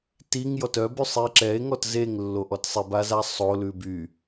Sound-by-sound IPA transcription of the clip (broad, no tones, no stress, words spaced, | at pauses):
tiŋ jɔtœby sˤie̯ǁɛe̯ŋɔt zeŋlːoʔɔt sˤibaza sˤo lʉby